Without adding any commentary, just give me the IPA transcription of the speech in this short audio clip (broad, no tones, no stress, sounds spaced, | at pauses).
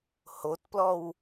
h o t p l ɔ w